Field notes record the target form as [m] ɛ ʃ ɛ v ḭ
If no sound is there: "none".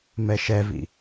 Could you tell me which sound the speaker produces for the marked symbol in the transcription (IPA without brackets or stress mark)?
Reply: m